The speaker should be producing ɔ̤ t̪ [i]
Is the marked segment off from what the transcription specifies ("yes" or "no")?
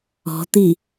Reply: no